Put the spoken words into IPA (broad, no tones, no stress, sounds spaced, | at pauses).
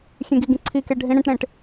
xʲ ẽ ɡ i ɡ ĩ ǀʰ i k e ɖʱ ĩ ɽ ẽ ʈ ɾ ẽ ʈ